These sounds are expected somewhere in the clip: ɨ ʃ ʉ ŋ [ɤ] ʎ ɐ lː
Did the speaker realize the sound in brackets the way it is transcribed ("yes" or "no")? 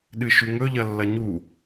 no